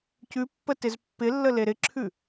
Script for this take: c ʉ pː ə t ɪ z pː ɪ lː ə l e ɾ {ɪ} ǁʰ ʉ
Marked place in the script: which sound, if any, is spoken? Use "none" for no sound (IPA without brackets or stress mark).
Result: ɪ